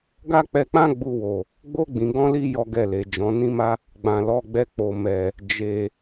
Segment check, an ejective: absent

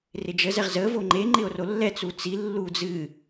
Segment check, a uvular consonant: present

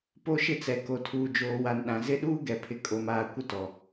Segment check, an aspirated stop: present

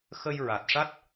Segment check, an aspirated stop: absent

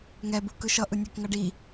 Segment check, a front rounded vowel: absent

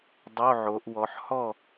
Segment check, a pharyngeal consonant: present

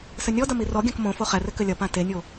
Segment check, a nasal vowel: present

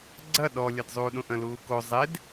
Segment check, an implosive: present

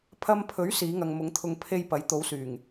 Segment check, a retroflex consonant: absent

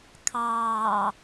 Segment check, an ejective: absent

